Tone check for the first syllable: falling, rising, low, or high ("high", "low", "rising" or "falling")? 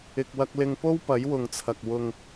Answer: low